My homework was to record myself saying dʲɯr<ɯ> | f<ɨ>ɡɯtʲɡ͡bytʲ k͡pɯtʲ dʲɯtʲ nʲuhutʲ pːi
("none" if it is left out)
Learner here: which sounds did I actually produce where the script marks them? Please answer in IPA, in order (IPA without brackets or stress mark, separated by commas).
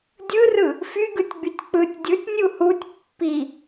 ɯ, y